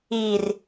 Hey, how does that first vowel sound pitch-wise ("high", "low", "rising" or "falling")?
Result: low